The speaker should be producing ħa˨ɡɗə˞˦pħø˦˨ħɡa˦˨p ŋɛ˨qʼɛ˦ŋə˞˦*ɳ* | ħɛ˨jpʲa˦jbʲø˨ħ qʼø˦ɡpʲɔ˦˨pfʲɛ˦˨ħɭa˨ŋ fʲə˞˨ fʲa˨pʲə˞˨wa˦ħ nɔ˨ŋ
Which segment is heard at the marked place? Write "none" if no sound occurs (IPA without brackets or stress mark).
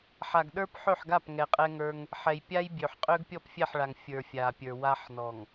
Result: ŋ